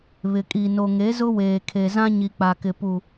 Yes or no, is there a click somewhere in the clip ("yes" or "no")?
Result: no